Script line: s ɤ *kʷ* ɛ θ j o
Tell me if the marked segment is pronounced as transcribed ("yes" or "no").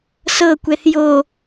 yes